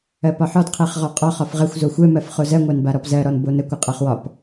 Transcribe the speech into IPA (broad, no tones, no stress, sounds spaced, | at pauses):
ɜ p ɒ ħ ɔ d qʰ ɛ χ ʁ ɔ qʼ ɒ χ ɒ f ʁ ə xʷ z o xʷ ɛ m ɜ f χ o z ɜ ŋʷ a n b a ɾ ɔ p z ɜ ɾ ɔ n b o n ə kʷ ə qʼ ɜ χ w ɒ p